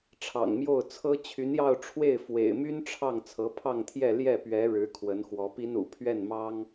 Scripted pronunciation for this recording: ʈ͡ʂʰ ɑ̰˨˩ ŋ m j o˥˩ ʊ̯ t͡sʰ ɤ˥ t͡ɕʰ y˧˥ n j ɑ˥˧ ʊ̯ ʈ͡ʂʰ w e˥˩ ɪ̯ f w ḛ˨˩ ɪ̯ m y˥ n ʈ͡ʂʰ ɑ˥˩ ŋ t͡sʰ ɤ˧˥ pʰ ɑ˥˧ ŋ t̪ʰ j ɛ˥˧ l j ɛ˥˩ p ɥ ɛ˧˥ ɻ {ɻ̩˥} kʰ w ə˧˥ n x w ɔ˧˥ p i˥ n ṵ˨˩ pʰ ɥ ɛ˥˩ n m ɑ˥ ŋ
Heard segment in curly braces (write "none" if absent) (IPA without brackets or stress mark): ɻ̩˧˥